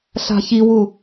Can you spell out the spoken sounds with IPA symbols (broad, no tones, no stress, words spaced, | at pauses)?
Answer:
ɬa̤çiwu